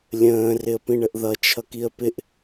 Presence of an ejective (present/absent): absent